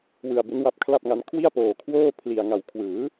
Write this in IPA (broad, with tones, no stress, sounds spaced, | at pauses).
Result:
w ɯ˧ a̯ b e˦˥ n w a˦˥ p̚ kʰ l a˥˩ p̚ ŋ a˦˥ n kʰ w i˥˩ a̯ p oː˧ kʰ w oː˥˩ pʰ l i˧ a̯ ŋ a˨˩ w kʰ w ɯː˩˦